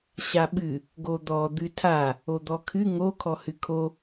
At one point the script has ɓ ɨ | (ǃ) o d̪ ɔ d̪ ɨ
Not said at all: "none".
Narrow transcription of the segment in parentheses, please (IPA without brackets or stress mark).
ɡ